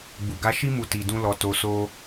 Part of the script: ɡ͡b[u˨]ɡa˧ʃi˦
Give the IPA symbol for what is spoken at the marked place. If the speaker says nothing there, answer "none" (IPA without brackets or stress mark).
u˨